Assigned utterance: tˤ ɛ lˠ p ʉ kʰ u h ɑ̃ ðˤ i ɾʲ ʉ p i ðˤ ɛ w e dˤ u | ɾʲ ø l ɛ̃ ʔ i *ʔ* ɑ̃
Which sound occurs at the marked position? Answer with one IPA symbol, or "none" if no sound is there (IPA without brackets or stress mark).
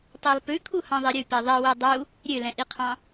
qʰ